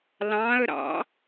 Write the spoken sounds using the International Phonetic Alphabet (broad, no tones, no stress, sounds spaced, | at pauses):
l ɑ̃ ə̯ ɾ ɑ̰